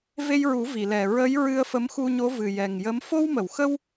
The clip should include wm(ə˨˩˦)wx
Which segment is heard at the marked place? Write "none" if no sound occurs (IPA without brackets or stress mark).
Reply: ə˨˩˨